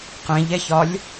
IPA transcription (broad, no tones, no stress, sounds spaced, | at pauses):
q ɛ̃ ʎ ɛ ç ɒ lʲ